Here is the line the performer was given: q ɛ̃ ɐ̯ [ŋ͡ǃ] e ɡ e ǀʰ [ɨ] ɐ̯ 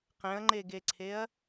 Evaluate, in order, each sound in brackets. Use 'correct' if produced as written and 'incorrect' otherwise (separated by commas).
correct, incorrect